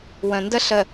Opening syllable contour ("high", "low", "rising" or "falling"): low